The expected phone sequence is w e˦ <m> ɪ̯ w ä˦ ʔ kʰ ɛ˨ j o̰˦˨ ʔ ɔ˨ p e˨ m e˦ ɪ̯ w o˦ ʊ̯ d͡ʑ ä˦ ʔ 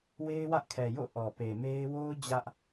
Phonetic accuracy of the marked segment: incorrect: none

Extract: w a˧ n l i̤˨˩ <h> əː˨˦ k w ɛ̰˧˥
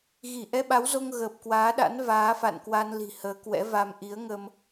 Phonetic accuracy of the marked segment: correct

